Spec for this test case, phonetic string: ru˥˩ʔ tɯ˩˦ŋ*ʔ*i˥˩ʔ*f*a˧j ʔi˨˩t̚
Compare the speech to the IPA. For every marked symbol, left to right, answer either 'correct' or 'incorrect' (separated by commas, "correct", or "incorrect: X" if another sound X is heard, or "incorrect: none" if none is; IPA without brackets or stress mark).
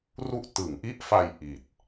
correct, correct